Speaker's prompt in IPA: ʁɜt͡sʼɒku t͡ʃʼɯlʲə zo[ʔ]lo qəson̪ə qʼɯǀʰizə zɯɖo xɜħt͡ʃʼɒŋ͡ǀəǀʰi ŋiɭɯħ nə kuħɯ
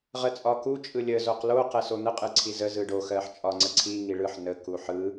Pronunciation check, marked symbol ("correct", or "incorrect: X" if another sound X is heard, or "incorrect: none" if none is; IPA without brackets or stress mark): incorrect: q